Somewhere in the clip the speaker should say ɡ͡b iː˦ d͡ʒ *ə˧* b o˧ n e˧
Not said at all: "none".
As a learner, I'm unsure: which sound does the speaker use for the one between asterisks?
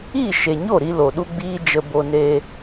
ə˧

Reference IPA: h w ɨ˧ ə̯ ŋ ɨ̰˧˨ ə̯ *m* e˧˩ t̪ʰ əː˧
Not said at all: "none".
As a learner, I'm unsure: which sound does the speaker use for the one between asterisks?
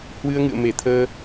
m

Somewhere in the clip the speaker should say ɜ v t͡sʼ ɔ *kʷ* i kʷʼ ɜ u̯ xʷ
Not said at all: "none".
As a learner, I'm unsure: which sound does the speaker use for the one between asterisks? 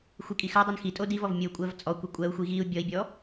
kʷ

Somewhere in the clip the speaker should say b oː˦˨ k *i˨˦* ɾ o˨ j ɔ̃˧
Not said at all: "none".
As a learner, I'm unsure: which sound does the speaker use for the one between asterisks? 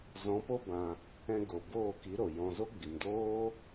i˨˦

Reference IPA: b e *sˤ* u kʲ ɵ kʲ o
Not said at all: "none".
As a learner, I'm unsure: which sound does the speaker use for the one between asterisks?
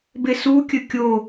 s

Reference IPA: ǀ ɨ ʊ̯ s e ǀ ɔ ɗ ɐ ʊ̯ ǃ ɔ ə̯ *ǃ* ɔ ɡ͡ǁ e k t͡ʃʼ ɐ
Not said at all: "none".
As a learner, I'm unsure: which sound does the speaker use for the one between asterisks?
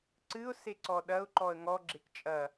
ŋ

